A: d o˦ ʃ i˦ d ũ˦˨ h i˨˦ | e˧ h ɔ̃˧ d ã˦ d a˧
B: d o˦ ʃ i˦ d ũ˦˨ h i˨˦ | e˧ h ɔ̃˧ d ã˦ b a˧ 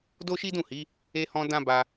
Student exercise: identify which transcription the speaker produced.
B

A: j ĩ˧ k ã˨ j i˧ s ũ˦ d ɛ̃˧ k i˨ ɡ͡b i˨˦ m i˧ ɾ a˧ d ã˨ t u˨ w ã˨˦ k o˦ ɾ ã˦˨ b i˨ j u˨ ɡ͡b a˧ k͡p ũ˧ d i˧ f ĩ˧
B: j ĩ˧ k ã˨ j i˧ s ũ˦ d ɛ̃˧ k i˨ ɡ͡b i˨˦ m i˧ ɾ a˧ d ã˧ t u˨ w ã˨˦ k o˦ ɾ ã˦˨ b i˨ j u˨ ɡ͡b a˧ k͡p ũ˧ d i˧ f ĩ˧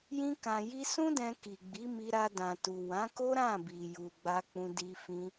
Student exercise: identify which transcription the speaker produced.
A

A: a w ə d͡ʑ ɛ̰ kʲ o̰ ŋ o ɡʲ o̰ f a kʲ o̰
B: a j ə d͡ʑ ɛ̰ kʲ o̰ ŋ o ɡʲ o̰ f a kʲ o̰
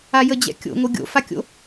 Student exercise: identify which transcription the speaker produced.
B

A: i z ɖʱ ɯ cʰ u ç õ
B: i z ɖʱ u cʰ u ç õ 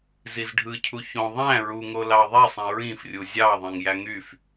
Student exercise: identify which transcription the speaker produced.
A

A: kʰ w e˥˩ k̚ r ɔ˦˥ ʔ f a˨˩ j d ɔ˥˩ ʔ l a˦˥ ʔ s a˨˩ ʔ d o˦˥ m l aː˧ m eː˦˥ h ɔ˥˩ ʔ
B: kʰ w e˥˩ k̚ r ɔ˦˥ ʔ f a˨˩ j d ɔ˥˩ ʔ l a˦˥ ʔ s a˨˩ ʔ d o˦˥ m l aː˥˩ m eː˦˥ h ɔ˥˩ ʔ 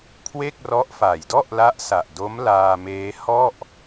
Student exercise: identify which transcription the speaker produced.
A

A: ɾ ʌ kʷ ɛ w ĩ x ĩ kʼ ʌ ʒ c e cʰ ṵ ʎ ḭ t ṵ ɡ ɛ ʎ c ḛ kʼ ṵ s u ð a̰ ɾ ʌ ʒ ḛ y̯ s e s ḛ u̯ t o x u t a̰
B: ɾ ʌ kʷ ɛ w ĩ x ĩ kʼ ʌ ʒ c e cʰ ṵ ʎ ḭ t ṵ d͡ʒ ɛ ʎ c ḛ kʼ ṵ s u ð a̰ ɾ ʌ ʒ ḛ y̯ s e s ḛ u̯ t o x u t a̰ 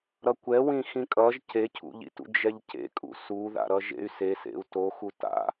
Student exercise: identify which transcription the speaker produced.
B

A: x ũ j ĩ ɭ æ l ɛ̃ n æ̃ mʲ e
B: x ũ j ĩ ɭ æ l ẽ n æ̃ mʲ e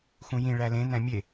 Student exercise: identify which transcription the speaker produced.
B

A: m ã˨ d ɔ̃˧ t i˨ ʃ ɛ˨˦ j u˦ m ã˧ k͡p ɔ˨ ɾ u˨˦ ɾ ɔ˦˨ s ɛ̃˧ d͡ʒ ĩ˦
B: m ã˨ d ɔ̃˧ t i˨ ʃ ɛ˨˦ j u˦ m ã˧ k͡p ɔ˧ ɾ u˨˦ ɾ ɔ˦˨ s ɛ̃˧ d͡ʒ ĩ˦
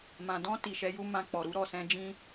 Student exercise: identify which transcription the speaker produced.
A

